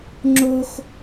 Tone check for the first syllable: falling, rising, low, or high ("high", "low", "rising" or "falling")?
high